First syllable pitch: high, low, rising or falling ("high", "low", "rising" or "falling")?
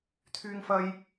high